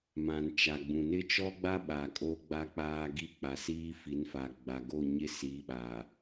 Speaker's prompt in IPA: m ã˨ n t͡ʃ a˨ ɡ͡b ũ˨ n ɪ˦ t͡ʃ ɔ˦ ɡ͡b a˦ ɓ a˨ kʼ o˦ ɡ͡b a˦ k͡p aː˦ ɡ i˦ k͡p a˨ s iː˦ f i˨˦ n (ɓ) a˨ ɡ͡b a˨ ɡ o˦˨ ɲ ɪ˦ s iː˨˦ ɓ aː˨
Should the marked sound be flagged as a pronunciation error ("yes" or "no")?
yes